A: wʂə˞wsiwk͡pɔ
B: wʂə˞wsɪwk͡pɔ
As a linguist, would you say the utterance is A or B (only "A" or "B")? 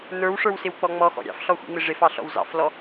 B